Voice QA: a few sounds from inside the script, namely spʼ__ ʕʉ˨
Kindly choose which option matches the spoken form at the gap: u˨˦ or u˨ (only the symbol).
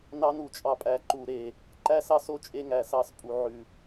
u˨